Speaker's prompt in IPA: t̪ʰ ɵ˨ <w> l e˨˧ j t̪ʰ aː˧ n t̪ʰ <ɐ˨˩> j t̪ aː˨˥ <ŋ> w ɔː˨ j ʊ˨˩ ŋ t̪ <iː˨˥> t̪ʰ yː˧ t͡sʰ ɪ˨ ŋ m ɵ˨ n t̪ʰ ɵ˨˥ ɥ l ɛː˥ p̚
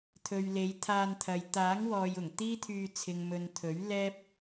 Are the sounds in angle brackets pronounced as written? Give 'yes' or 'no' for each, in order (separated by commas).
no, no, yes, no